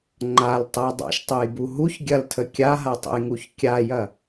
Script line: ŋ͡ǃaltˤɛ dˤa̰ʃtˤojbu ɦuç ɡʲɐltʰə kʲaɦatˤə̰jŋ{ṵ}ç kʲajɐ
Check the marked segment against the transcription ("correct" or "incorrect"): incorrect